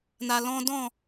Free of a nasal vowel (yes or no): no